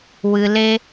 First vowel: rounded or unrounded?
unrounded